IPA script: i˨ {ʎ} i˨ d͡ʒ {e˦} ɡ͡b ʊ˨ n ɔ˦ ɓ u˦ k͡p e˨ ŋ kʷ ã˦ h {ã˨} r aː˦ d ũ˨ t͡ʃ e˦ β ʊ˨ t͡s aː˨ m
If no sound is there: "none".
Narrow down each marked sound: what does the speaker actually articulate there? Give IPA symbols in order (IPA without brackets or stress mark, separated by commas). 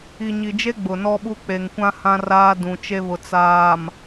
ɲ, e˦, ã˦